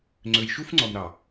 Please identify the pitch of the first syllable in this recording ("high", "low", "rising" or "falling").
low